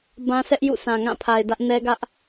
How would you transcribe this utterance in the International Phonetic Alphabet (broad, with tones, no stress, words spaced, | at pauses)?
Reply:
bã˦sɛ˦ʔjṵ˦˨ sʰã˨ŋã˦˨pʰa˨ɪ̯ dä˦ʔnɛ˦ɡä˦ʔ